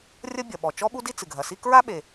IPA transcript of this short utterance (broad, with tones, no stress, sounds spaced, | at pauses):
rʲ ɐ˥ bʲ ɐ˩ ɓ ɔ˩ t͡ʃ ɔ˥ ɓ u˥ d i˥ t͡s ɨ˩ ɡʱ ɐ˩ s i˥ k ɹ a˥ ɓ e˩